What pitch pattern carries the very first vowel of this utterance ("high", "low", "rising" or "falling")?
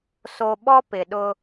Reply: low